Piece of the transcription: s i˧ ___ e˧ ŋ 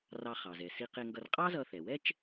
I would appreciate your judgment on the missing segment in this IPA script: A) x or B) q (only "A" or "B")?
B